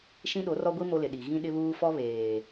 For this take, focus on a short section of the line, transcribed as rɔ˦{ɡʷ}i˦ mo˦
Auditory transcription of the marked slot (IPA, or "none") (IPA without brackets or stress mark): ɡʷ